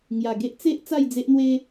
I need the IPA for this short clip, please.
ŋ j a˨˩ ɡ e˦ ʔ t͡s e˦ ʔ t͡s a˥˧ j d͡z e˦ ʔ n̪ w e˦

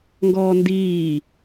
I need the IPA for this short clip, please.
ŋ ɡ ɔː n d iː

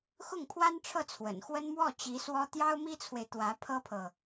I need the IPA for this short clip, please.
x ʊ˥˩ ŋ pʰ w a˥ n ʈ͡ʂʰ ɤ˥˩ t͡sʰ w ə̰˨˩ n x w ə˥ n m w ɔ˥˩ t͡ɕ i˧˥ s w ɔ˥ t̪ j ɑ˥ ʊ̯ m i˥ t͡sʰ w e˨ ɪ̯ t̪ w ä˧˥ pʰ ɤ˥ pʰ ɤ˨

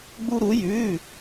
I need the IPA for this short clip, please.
ɡ͡b u˥ ɾ u˧˥ j ʉ˧˥˧

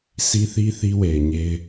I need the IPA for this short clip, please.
sʰ i˦ θ i˦ θ i˦ w e˨ ɪ̯ ɲ e˦ ɪ̯

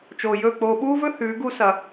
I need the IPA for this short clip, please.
t͡ʃ oː˨ j ɵ˦˨ k͡p oː˧ ɓ uː˦ v ɵ˦ h ʉː˨˦ ɡ u˦ s ɐ˧

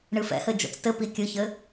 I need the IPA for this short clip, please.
ɳ ɨ f ɛ̰ h ɘ d͡ʒ o̰ t͡s t ɘ p i kʲ ɨ ç ɘ

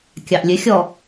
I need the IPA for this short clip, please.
kʲ ɑ ʔ lʲ ø xʲ ɔ

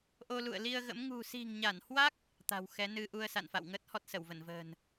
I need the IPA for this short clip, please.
ʔ o˧ l ṵ˧˨ ə̯ l i˧ ə̯ ɣ ə̰˧˥ m ŋ ṳ˨˩ s i̤˨˩ ŋ ɲ a˧˩ n h w a˦˥ k̚ | t̪ a̤˨˩ w x ɛ˨˦ n ɨ˧ ʔ u˧ ə̯ s a̰˧˨ n f a̰˧˨ w ŋ əː˦˥ t̚ h ɔ˦˥ t̚ s ə˧˩ w v ə˧˩ n v ə̤ː˨˩ n

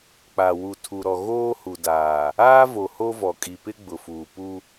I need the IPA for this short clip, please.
k͡p a˨ w u˨ tʰ u˨ ɾ ɔ˨ ɣ oː˦ h u˨ d aː˨ | aː˦ v o˨ h o˦ v ɔ˨ kʼ i˨ p ɪ˦ ɡ͡b ʊ˨ f uː˨ p u˦

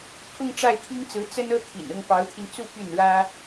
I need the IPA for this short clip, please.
kʰ ʊ˥˧ ŋ ʈ͡ʂ a˥˩ ɪ̯ t̪ʰ i˥ ŋ t͡s ɹ̩˧˥ t͡s ə˥ n ɤ˥ t̪ʰ ḭ˨˩ n ʊ˥˩ ŋ p ɑ˧˥ ʊ̯ t̪ʰ i˧ n t͡s u˥˧ p y˥˩ n ɻ ä˥

